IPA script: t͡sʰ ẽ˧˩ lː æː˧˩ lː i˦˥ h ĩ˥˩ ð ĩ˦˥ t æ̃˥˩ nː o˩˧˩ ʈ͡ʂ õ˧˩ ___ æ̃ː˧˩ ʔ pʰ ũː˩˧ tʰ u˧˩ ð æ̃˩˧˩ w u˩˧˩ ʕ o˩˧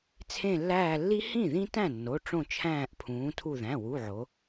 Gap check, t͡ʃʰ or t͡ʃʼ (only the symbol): t͡ʃʰ